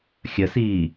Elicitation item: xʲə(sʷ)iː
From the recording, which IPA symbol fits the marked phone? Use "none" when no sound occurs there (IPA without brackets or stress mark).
s